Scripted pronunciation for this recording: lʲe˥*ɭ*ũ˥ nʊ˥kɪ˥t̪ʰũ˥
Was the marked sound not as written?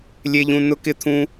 yes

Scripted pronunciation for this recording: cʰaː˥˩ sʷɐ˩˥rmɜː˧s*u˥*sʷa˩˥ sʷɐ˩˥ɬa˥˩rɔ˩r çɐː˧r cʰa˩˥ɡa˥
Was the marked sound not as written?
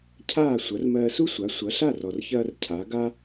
no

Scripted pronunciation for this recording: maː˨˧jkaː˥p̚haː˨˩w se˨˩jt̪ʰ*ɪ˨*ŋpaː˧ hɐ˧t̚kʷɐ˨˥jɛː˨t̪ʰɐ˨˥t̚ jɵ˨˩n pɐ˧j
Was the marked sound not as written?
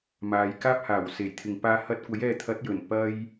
no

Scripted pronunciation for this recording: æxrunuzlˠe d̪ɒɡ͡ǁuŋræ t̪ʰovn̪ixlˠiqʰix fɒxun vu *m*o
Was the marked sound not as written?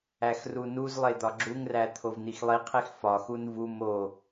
no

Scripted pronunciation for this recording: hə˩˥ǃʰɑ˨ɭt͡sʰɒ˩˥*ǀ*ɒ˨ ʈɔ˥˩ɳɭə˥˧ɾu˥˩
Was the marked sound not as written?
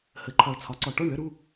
no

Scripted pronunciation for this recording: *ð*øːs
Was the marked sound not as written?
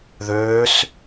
no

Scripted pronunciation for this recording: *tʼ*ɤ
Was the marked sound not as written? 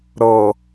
yes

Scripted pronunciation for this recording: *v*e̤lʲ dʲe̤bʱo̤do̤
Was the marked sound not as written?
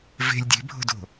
no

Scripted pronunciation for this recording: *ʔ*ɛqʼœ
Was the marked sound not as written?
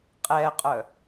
yes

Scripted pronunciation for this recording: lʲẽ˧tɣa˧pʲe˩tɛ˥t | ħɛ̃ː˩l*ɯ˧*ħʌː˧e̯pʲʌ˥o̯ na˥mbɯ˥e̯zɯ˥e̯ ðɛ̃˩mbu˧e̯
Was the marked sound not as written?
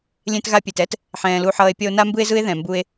yes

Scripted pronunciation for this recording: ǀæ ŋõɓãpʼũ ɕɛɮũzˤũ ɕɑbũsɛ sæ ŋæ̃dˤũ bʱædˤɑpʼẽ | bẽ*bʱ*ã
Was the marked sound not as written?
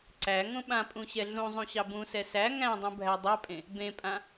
yes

